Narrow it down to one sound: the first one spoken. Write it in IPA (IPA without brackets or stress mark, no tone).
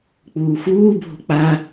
k͡p